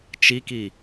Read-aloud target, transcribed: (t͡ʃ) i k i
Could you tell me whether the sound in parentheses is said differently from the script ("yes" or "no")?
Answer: no